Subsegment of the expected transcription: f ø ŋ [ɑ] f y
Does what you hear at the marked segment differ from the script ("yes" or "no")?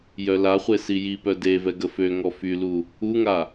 yes